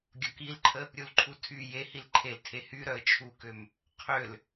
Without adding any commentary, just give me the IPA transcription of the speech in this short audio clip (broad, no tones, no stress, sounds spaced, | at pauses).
ɡʲ ɔ k i l ǃʰ ə | ɾʲ u l ǃʰ u tʰ y j e h i l ǃʰ e l tʰ e h y ɾ œ ə̯ t͡ʃʰ u k ø m | qʰ ø l